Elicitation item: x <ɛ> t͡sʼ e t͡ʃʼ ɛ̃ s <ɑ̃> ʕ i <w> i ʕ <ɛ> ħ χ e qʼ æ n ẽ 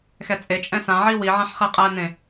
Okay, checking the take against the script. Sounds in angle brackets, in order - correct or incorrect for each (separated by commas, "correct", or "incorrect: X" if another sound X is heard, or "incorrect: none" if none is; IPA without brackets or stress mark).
correct, incorrect: ã, correct, incorrect: ɛ̃